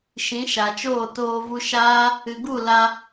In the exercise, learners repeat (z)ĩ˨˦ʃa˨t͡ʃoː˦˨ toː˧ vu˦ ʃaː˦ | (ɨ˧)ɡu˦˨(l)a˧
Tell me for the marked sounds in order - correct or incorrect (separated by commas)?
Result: incorrect, incorrect, correct